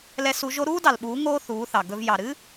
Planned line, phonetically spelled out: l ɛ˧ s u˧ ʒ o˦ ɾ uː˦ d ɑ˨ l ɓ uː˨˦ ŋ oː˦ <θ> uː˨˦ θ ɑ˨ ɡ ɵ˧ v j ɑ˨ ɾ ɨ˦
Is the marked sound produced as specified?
yes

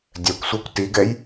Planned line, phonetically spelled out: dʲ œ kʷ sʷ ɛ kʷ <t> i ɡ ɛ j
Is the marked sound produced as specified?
yes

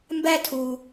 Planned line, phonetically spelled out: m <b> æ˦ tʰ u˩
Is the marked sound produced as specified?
yes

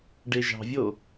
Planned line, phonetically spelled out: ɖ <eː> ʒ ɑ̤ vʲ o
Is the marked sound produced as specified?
no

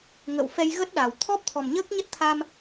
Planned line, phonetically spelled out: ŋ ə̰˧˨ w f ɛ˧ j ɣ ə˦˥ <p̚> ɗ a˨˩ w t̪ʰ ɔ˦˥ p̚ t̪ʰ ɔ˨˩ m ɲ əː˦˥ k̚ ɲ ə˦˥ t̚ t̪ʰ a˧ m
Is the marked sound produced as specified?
no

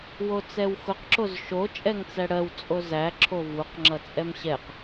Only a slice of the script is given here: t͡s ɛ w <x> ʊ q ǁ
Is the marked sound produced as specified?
yes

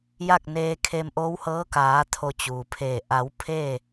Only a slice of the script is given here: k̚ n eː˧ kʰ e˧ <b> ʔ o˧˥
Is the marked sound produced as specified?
no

